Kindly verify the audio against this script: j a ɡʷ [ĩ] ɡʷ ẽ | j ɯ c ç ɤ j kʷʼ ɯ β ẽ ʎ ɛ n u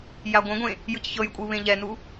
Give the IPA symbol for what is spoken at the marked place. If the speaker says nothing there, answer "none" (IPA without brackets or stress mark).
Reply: ẽ